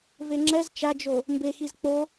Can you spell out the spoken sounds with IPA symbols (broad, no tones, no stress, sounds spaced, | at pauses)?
v e ŋ͡ǁ ɛ z t͡ʃ a d͡ʒ o | m b e x i z k͡p o